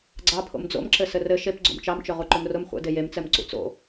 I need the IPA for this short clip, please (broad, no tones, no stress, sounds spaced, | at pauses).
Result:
ɡ͡ǀ ɑ pʰ o̰ m d͡z o̰ m ǁ ɘ s ɘ r ɘ ʃ e p ɡ͡ǀ o̰ m t͡ʃ ɑ m t͡ʃ ɵ ʁ u ǃ ɵ m r ʊ m χʷ ə̰ d e j e m t͡s ɛ m ǀ ṵ t͡s o̰